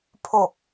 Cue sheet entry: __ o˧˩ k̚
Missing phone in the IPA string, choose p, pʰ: pʰ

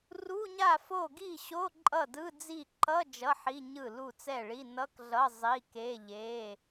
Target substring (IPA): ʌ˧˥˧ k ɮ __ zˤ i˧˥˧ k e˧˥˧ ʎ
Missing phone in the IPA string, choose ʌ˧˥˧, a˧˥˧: ʌ˧˥˧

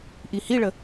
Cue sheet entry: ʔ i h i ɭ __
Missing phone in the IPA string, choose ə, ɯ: ə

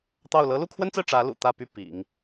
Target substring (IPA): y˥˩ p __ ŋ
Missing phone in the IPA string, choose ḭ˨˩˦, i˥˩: ḭ˨˩˦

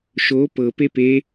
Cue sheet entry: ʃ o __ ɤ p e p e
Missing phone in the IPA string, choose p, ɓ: p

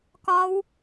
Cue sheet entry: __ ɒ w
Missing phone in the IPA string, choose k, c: k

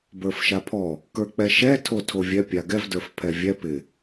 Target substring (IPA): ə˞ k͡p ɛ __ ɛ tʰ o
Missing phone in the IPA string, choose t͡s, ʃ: ʃ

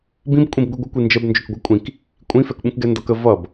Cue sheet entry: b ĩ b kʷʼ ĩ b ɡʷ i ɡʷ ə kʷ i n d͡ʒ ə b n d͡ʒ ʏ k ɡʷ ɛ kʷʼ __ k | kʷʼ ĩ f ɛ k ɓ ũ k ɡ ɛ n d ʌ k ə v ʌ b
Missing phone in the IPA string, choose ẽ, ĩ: ĩ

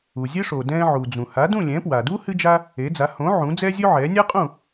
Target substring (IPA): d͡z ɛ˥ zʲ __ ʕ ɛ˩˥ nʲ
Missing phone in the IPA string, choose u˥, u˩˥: u˥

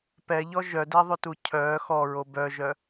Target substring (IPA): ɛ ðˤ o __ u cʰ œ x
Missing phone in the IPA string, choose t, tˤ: t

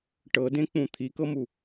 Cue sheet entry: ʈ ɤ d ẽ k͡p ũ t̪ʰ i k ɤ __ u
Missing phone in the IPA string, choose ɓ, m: m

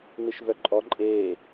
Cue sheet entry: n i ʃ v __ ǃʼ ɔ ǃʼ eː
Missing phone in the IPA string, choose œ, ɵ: œ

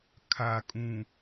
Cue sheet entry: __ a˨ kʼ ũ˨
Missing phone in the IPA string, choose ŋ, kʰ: kʰ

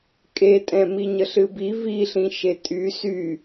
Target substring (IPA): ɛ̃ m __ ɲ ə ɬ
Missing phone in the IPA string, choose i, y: i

